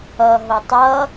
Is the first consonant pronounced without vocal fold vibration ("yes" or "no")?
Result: no